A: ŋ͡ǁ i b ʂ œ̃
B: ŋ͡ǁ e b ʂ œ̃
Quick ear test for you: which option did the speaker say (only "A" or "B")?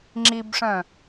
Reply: A